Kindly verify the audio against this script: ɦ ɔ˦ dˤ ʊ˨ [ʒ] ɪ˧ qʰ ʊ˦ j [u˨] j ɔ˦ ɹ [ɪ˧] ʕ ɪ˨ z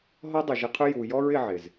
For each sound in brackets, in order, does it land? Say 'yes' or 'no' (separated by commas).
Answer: yes, yes, yes